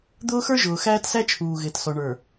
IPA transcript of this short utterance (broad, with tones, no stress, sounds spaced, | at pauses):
d̪ ʊː˦ x ə˞˦ ʒ ʊː˨ x æː˦ t s æ˦ t͡ʃʰ uː˨ ɣ ɪː˨ t s ɔ˨ ɳ ə˞˨